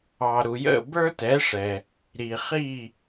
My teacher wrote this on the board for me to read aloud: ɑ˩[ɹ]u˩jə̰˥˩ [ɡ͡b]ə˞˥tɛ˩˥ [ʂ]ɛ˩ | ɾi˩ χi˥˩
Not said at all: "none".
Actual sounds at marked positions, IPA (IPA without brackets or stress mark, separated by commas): ɾ, b, ʂ